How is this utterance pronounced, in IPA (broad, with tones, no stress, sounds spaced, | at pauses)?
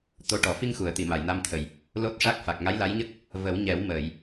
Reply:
t̪ o˧ ʈ ɔ˨˩˦ f i˧ ŋ x u˨˩˨ ə̯ t̪ i˨˩˨ m a˨˩˨ j n a˧ m t̪ʰ ə˨˩ j | l o˦˥ t̚ ʂ a˦˥ k̚ f a˨˩ k̚ ŋ a˧˥ j l a˧˥ j ɲ ə˦˥ k̚ | v ə˨˩˦ w ɲ ɛ˨˩˦ w m əː˨˩˨ j